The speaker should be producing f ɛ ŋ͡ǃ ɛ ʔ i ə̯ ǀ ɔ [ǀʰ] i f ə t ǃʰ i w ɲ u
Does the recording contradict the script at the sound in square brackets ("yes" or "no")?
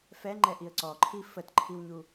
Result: yes